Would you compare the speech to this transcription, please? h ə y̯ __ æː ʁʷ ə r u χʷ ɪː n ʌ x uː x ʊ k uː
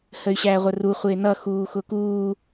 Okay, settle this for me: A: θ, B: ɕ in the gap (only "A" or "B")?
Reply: B